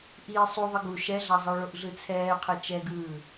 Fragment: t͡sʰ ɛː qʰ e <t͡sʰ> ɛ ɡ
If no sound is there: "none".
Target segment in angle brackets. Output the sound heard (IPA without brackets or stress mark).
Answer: t͡ʃ